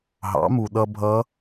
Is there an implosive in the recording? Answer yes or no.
yes